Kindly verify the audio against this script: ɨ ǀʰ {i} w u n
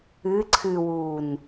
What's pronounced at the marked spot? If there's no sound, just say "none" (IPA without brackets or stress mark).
ɨ